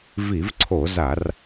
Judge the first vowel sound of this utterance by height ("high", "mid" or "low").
high